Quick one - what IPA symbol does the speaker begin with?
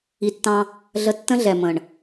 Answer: i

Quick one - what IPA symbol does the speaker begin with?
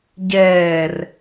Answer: ɟ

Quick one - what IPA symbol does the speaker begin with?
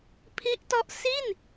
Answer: pʰ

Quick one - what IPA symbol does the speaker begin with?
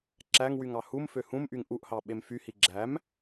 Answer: ǁ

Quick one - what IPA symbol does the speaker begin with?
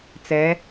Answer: t͡s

